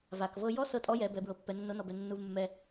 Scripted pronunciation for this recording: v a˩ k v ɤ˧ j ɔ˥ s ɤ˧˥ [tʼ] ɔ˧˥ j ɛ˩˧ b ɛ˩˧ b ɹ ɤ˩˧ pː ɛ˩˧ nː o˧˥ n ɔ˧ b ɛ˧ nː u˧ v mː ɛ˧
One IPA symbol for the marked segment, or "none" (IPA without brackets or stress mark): tʼ